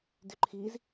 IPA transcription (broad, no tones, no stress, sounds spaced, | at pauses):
d y ǃʰ i z